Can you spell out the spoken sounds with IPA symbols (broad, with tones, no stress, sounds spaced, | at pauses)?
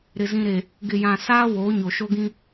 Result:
ɾ ɪ˨ z ĩ˨ ɾ e˨ | ɡ ɪ˨ j ã˨ s aː˦ w oː˨˦ ɲ o˨ ʃ o˦ ɡ ĩ˦